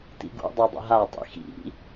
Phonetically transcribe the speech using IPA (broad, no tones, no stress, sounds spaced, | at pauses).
t ḭ ɡ ṵ dˤ ɛ dˤ ə̰ ɦ a tˤ ḭ x ḭ